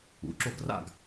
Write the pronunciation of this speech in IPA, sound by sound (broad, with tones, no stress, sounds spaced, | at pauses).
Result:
ṵ˩˧˩ ǁ o˥˨ ɡ r a̰˥˨ ɡ